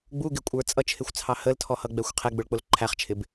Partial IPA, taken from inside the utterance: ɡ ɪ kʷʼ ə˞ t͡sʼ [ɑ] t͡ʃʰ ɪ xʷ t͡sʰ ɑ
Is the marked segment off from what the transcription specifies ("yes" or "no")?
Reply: yes